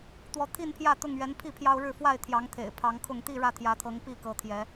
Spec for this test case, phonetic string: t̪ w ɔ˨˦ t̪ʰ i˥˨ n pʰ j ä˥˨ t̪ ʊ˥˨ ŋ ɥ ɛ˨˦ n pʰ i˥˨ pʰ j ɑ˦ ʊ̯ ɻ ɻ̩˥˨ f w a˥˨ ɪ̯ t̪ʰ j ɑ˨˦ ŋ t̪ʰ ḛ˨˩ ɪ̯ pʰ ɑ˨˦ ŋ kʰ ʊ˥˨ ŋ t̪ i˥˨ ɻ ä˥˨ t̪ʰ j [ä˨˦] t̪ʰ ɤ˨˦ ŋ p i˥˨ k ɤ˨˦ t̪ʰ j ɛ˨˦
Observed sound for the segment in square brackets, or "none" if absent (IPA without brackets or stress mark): ä˨˦